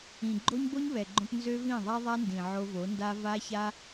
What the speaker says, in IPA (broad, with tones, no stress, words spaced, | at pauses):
ĩ˨ɡ͡ǃo˦ɲ bo˦ɲβɛ˨ɡ͡ǃõ˧p nzø˦vĩ˦˨ðˤa˦ ðˤa˦ndĩ˨ ʕo˧vo˨˦nda˦ va˦ça˦